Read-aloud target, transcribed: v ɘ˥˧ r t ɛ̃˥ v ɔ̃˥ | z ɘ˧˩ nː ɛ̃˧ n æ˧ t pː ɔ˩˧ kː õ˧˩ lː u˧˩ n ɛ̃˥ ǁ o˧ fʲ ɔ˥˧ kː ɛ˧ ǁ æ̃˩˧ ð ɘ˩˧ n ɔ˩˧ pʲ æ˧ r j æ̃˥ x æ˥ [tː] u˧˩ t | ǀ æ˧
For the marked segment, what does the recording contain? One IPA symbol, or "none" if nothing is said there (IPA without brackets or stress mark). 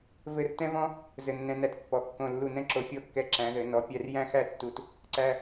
tː